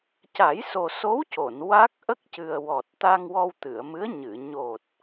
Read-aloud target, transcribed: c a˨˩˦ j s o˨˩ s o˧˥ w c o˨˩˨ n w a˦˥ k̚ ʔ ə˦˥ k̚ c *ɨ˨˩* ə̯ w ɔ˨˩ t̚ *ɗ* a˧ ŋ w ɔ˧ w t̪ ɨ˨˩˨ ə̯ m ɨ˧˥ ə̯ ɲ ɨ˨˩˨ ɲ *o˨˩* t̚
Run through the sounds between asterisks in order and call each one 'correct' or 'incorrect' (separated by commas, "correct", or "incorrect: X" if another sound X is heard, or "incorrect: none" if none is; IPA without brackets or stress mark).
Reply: correct, incorrect: t̪, correct